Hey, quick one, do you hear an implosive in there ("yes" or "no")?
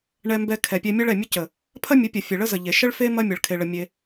no